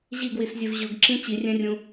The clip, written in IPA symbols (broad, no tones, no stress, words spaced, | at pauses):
ʑiɡwiszʲev ʑʊɡǁĩ t͡ɕirʲɛ̃rʲũ